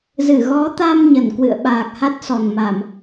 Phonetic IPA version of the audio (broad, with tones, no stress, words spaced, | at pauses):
zɨ˧˩ ɣɔ˨˦t̪a˧m ɲə˧˩nkwɨ̰˧˨ə̯ɓaː˨˩k̚ ha˦˥t̚sɔ˧˩nma˧˩˨m